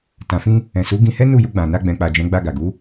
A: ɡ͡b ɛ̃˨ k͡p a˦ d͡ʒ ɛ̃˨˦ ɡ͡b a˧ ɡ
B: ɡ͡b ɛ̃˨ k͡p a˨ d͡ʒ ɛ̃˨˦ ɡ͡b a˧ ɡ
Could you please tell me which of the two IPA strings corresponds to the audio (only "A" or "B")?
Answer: B